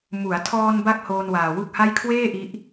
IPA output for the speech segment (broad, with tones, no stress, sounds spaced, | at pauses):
m u˩˦ a̯ tʰ ɔː˧ n b a˥˩ k̚ h oː˧ n w aː˨˩ w u˥˩ k̚ h a˥˩ j kʰ w eː˥˩ ʔ i˦˥ ʔ